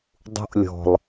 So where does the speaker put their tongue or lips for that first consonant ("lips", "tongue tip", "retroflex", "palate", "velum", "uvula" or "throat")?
tongue tip